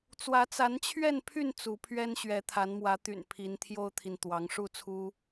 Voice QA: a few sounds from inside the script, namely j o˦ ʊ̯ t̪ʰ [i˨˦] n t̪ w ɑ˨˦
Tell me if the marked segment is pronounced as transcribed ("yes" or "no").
no